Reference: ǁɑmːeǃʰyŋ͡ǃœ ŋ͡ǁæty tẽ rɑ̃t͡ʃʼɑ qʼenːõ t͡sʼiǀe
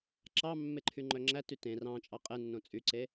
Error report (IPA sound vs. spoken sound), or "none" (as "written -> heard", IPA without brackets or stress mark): i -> y